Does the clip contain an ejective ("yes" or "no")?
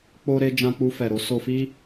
no